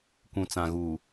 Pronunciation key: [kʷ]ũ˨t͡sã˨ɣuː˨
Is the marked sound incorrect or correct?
correct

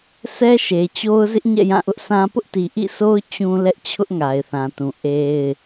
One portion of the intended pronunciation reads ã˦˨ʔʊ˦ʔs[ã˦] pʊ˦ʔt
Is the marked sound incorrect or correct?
correct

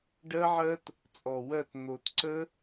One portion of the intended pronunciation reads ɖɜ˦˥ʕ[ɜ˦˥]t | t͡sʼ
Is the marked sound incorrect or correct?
correct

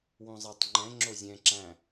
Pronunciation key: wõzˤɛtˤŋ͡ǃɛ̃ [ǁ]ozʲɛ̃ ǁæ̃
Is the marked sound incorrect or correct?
incorrect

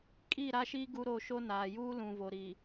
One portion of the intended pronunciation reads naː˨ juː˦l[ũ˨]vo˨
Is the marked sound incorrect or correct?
correct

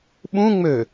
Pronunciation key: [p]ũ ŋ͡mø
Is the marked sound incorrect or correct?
incorrect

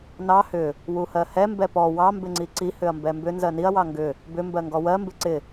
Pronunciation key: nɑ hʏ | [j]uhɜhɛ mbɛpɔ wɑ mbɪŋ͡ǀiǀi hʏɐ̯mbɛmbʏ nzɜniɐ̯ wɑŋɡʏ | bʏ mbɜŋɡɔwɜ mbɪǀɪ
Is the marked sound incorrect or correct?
incorrect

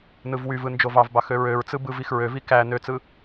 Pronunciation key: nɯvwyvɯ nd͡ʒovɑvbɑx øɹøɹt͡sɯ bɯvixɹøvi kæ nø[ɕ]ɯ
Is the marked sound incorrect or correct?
incorrect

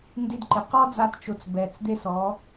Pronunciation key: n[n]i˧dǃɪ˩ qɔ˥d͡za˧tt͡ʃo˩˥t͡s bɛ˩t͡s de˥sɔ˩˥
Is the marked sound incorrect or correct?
incorrect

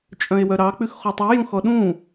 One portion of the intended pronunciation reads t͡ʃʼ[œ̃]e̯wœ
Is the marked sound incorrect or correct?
correct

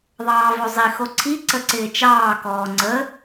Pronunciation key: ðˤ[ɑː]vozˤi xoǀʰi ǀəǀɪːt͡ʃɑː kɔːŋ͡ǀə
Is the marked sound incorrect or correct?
correct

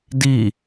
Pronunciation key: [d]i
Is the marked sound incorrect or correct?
correct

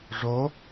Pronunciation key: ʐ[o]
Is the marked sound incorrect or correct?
correct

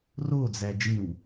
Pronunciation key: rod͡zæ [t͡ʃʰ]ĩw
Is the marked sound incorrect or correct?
incorrect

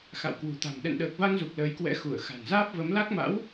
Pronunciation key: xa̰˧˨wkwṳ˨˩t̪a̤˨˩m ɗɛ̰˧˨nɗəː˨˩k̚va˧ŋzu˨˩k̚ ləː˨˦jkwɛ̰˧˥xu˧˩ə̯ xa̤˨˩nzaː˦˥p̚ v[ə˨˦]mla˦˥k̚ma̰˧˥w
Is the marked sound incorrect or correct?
correct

